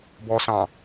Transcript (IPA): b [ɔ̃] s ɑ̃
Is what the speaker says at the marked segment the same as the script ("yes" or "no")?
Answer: no